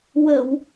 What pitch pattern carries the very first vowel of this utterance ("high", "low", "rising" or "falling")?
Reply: low